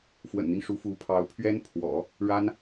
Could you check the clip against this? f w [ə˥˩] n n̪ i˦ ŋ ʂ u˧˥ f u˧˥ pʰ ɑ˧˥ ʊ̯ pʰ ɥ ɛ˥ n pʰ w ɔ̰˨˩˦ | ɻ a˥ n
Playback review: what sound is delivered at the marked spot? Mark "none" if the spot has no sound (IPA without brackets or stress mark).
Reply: ə̰˨˩